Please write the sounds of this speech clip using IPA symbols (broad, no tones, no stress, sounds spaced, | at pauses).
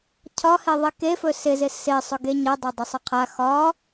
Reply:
cʰ ɒ h e ðˤ i k e f ɵ s ɪ z ɪ s ɪ sˤ ɵ ɡ e ɲ ɜ dˤ ɜ dˤ ə sˤ ɪ qʰ a x ɒ